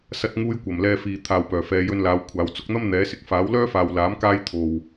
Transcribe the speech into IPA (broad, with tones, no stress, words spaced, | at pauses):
sɐ˧t̚ŋuː˧j kʷɐ˨˩mlɛː˧ fiː˨ t̪ʰaː˨wpœː˨˩fɛː˨˧ jɵ˧nlaː˨˧w kʷʰaː˨˧w t͡sʊ˧k̚n̪ɐ˥m n̪ɛː˨˥sɪ˨k̚ faː˨˥wlœː˥faː˨wlaː˨˥m kaː˥jt̪ʰo˨w